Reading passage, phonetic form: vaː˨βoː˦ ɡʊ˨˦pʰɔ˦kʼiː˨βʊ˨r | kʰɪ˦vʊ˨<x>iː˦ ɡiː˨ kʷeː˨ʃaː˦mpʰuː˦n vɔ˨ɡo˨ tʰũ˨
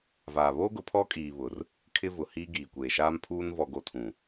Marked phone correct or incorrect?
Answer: incorrect